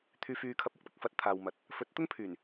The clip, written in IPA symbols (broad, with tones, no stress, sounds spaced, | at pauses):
t̪ʰ yː˨ f yː˨ kʰ ɐ˨ p̚ ʊ˥ k̚ p ɪ˧ k̚ f ɐ˨˥ t̚ t̪ʰ aː˨ w m ɐ˨˥ t̚ | f ɵ˨˥ t̚ t̪ ʊ˥ ŋ pʰ yː˨˩ n